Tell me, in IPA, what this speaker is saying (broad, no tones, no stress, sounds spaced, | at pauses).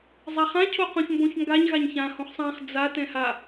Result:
zˤ a χ ã cʰ o q õ ç m b õ ç ŋ ɡ a ɲ ɣ a ɲ ç ã h õ χ sˤ ã χ d͡z a t ɛ̃ h a